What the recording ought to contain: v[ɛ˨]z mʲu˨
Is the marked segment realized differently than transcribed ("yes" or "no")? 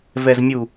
no